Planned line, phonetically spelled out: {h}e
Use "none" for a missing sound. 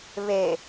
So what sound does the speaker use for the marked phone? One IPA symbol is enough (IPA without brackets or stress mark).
β